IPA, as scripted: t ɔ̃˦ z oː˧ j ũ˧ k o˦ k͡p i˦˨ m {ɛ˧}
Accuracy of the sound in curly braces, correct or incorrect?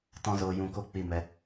correct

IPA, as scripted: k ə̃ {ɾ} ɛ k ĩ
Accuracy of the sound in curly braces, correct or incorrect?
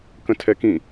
incorrect: tʰ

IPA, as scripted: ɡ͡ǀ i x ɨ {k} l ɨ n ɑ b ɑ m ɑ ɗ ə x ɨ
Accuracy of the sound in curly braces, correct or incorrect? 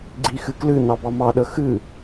correct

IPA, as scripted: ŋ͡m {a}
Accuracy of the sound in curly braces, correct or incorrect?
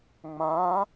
incorrect: ã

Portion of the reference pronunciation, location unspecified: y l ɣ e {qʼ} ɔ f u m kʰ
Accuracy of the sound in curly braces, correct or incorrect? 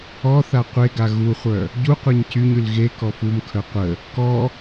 incorrect: k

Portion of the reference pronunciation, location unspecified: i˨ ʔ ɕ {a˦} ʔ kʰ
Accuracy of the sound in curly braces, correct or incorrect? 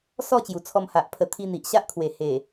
correct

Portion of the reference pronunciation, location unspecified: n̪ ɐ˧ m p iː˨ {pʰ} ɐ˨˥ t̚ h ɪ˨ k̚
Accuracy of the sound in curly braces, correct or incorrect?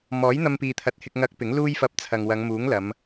incorrect: t̪ʰ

